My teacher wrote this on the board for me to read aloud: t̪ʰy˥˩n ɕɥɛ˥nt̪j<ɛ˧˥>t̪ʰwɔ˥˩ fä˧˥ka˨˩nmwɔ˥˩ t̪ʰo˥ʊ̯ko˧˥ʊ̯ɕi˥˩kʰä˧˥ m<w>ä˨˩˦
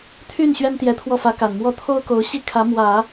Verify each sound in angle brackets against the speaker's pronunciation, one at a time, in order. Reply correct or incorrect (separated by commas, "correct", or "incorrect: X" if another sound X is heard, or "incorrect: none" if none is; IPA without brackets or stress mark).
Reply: correct, correct